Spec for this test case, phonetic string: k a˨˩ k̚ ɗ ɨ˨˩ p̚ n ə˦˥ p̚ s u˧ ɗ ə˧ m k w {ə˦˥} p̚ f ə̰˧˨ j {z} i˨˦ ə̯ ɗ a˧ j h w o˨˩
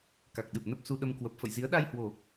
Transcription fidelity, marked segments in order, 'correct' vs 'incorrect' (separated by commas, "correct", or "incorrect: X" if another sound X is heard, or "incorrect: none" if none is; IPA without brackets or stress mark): incorrect: ə˨˩, correct